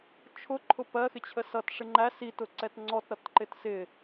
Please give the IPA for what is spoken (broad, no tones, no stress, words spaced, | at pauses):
t͡ʃʰʊǃʰʊ pɜxɪt͡ɕʰə sʌt ʂɪŋ͡ǃæ sitʊ ǀɛtŋ͡ǀɔtɾʌtǃɪt sɪ